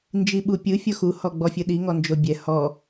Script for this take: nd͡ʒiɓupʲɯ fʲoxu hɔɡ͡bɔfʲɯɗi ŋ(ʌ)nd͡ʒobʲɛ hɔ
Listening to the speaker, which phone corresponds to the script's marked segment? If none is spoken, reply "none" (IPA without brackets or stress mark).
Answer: ɔ